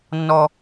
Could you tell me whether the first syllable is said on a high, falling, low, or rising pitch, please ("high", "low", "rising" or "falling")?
high